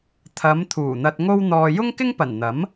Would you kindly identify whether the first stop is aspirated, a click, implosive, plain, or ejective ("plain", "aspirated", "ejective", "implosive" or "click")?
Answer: aspirated